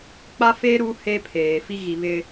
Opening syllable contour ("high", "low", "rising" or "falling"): high